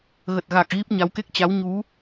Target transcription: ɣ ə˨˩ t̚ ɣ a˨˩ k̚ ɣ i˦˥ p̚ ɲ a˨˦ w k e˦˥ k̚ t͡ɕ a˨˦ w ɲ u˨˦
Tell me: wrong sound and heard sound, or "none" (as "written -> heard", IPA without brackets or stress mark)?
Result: none